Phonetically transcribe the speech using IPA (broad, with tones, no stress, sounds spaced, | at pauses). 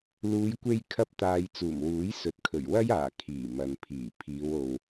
l uː˨˧ j kʷ e˧ j kʰ ɐ˧ p̚ t̪ aː˨ j t͡s uː˨˩ m w uː˨˥ j s ɵ˨ t̚ kʰ ɵ˨˩ ɥ w ɐ˥ j aː˨˩ kʰ iː˨˩ m ɐ˨ n pʰ iː˨˩ pʰ iː˨˧ w o˨ w